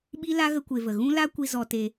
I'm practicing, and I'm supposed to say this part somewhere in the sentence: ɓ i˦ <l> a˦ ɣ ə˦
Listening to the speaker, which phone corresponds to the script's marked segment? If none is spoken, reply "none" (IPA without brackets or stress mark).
l